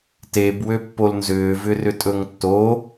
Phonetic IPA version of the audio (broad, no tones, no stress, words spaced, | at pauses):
teb wøpːolnzʏː vʏrʏtʼɵŋtːo